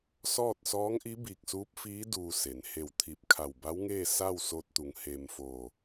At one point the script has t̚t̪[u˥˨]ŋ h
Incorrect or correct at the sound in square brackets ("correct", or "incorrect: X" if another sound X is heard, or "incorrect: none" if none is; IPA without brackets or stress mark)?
incorrect: u˩˧